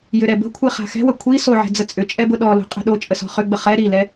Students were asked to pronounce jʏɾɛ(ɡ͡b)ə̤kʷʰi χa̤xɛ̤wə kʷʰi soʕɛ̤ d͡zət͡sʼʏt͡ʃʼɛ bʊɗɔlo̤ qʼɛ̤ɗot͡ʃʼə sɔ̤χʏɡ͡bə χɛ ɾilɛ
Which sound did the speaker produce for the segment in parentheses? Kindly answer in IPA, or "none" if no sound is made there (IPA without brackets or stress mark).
b